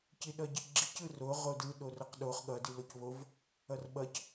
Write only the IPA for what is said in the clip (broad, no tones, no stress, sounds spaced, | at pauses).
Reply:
c i ɗ ʌ ɟ i ɡ͡ǁ i c ɯ r o ʁ o d ɯ ɗ o r ʌ q ɗ o χ ɠ ʌ d i l o c β o v | ʌ r ɓ ʌ c